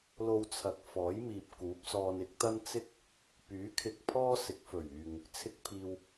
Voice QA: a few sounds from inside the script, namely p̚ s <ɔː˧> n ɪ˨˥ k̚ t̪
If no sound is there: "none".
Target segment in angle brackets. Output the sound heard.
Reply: ɔː˧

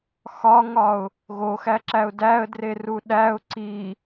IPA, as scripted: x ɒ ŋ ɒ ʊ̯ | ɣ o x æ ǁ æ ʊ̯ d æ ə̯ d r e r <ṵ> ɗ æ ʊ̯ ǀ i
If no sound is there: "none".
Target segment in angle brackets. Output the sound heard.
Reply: u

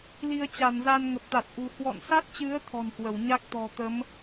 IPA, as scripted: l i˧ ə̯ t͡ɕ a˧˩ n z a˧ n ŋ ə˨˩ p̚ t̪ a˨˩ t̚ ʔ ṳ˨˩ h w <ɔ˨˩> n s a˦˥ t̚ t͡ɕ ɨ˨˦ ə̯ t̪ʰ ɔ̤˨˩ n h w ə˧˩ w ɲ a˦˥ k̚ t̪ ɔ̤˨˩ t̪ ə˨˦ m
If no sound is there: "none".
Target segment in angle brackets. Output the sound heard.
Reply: ɔ̰˧˨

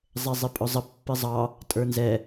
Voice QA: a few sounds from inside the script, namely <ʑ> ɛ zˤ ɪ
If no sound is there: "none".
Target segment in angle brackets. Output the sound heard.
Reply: zˤ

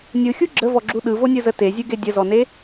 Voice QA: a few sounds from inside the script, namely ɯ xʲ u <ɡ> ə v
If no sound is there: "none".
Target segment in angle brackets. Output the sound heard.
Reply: ɡ͡ǁ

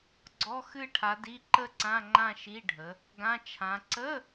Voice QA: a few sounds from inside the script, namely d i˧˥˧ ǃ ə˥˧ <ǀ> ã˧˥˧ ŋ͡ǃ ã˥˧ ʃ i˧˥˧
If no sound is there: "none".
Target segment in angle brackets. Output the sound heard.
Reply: ǀ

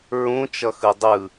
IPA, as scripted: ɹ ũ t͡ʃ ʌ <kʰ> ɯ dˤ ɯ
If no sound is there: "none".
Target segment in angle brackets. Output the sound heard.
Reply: x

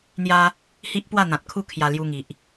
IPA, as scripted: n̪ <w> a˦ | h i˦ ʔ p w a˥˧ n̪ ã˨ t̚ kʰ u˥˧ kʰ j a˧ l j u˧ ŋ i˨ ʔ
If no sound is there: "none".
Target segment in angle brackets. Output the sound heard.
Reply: j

